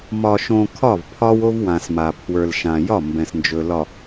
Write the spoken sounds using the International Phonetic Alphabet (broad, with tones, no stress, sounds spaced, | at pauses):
m ɒ˨ ʃ õ˨ kʰ ɒ˦˨ v pʰ ɒ˦ w o˦ v w ã˨ s m a˨ pʰ w ə˞˨ l ʃ ã˨ j ɒ˦˨ m b ɛ̃˨ s n d͡ʒ ɵ˨ l ɒ˨